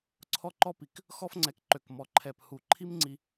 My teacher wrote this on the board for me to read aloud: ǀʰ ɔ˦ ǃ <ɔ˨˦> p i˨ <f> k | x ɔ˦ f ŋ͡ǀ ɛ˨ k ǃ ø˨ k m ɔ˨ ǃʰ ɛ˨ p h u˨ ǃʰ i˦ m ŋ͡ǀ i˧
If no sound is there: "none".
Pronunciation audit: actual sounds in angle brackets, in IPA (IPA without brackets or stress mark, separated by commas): ɔ˦, none